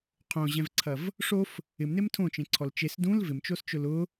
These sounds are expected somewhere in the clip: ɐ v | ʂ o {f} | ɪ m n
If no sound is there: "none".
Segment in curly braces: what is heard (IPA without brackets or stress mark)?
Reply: f